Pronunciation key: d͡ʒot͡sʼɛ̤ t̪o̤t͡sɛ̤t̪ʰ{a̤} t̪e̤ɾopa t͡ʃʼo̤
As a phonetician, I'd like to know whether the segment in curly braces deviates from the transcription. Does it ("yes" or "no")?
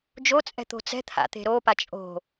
yes